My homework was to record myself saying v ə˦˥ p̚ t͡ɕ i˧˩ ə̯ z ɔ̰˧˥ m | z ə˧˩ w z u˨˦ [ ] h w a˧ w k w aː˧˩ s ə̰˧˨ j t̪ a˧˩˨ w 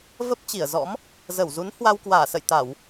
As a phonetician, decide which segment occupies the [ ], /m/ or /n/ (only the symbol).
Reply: n